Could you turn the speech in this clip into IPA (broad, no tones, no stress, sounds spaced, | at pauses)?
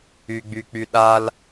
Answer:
y ɡ͡b y k͡p y ɗ a l